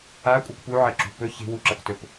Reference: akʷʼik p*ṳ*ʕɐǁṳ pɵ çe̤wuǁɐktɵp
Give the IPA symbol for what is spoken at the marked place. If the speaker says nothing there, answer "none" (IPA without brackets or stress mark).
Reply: u